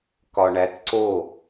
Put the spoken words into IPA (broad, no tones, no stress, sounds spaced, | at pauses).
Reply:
k ɒ ɳ æ t ǀ o